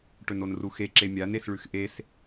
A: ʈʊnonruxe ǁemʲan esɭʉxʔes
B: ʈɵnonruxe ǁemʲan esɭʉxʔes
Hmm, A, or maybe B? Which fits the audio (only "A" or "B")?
B